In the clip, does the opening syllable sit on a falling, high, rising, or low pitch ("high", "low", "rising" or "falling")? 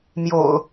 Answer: low